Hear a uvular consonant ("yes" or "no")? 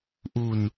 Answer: no